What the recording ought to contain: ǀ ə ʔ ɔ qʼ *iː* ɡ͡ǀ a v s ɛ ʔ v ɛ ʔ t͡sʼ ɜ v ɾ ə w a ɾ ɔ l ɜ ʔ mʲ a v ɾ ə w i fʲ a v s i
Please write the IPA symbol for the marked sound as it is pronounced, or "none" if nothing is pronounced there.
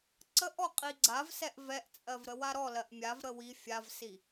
i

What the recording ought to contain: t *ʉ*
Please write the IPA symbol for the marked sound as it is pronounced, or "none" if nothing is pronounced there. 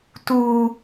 u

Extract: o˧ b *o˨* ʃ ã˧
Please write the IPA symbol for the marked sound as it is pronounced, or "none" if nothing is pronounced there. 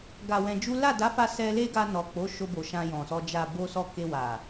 o˨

